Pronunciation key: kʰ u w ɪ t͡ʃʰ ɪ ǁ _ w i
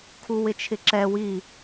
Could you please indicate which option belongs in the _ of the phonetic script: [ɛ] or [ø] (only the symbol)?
ɛ